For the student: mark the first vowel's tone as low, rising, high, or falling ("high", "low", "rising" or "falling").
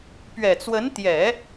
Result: low